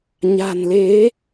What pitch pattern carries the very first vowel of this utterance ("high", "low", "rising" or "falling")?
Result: low